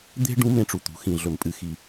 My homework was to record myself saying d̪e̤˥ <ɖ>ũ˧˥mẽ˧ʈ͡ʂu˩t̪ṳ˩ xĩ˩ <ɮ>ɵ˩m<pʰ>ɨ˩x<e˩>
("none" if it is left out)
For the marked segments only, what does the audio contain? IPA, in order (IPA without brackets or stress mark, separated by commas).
ɖ, ɮ, pʼ, i˩